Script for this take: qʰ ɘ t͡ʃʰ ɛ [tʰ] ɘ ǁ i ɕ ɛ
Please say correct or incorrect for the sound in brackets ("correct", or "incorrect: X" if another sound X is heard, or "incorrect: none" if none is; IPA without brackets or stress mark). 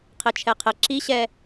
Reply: incorrect: qʰ